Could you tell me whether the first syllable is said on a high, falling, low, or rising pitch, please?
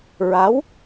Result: rising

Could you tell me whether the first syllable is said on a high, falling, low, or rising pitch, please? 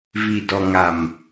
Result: low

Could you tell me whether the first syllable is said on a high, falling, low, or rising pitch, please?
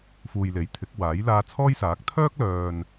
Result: low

